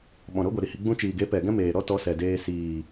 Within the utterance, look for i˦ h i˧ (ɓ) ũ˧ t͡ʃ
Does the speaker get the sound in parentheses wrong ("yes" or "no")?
yes